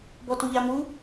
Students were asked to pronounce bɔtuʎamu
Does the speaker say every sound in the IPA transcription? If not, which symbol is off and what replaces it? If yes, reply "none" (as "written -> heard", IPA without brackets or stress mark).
none